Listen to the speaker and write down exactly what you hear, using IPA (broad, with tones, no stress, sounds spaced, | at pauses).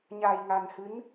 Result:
ɲ a˨˩ j ŋ a˨˩ n h ɨ˨˦ n